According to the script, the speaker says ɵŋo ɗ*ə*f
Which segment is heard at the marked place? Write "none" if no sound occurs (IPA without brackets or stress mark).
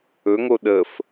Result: ə